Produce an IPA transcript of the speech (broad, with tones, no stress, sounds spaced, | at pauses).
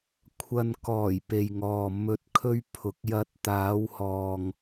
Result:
kʷʰ ɐ˨ n k ɔː˨˩ j p e˨ j ŋ ɔː˨ m ɵ˨˥ t̚ kʰ ɵ˧ ɥ pʰ ʊ˨ k̚ j ɐ˨˥ t̚ t̪ aː˨˧ w h ɔː˨ ŋ